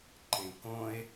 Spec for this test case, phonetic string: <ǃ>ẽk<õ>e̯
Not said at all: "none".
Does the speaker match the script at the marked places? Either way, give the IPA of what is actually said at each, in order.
ǃ, õ

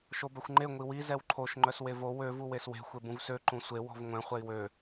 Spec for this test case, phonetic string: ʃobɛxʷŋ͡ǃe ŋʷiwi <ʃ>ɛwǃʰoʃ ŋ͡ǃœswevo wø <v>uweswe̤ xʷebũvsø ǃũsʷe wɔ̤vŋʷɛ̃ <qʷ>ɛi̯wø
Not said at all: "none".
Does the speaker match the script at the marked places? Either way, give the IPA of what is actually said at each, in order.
z, v, χʷ

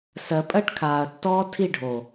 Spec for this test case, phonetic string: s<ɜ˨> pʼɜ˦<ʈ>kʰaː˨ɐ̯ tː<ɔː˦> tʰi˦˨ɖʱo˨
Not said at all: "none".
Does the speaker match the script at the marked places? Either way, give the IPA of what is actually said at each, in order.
ɜ˨, ʈ, ɔː˦

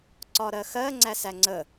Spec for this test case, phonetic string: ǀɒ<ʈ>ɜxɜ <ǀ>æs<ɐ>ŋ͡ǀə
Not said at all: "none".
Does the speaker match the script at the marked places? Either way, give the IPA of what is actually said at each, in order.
ɾ, ŋ͡ǀ, æ

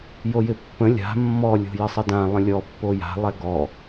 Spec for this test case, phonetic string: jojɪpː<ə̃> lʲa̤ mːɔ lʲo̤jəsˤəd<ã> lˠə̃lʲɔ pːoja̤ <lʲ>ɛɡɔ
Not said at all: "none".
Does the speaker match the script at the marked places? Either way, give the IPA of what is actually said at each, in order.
ə̃, ã, lˠ

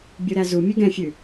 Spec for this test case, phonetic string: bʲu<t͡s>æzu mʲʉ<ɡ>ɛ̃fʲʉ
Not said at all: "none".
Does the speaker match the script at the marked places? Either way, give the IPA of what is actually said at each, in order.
ɾ, ɡ

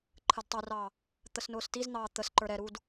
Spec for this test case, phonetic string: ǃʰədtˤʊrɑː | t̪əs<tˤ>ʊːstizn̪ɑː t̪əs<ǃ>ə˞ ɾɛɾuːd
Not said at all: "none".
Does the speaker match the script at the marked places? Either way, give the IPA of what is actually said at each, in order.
n, ǃ

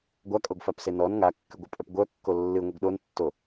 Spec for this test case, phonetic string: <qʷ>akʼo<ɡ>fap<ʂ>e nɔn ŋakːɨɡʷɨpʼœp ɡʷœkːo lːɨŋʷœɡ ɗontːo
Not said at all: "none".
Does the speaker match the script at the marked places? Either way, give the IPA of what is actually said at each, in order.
ɡʷ, ɡ, s

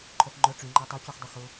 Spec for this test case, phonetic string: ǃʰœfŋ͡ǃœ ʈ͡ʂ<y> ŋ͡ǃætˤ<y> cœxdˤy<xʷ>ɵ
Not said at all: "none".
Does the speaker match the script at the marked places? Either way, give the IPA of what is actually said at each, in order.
y, y, x

